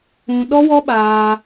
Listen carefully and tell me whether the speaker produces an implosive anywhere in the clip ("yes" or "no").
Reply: yes